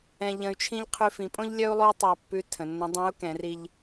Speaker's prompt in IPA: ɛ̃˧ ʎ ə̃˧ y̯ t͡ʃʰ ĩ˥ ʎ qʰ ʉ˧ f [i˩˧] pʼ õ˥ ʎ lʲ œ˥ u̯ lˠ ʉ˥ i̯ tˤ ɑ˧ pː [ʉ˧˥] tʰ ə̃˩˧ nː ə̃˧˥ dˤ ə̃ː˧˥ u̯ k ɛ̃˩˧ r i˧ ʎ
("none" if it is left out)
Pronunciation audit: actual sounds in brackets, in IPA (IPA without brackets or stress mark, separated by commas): ĩ˩˧, ʉ˧˥